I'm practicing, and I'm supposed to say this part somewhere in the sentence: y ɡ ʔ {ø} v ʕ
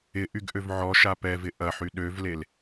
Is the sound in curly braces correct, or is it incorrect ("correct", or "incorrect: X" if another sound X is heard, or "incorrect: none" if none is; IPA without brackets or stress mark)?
correct